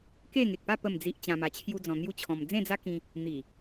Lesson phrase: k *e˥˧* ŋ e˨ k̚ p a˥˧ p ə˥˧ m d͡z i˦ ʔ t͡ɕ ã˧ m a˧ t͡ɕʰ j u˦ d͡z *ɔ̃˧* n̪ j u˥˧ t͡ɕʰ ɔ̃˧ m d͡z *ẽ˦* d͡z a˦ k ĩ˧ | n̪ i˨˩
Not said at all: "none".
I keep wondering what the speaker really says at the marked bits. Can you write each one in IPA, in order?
e˥˧, ɔ̃˧, ẽ˥˧

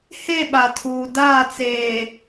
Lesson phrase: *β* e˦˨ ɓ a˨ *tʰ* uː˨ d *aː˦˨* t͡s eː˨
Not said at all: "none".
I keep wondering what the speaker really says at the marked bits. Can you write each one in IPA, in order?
h, tʰ, aː˦˨

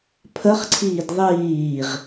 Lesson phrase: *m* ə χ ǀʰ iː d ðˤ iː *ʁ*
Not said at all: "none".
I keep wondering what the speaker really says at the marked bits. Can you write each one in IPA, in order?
pʰ, ʁ

